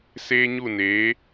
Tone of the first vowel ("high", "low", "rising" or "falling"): high